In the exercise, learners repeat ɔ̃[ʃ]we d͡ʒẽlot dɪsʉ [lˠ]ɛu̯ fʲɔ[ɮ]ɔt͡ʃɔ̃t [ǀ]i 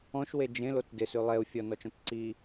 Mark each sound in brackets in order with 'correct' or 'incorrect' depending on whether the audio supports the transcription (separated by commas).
correct, correct, incorrect, correct